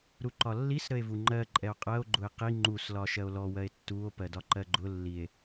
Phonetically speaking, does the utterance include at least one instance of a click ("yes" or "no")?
yes